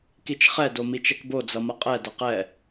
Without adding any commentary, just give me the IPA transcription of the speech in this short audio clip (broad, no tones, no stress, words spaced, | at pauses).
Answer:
kit͡ʃχɛ domit͡ʃɛkbo d͡zʌmʌqʼɛ dʌqɛ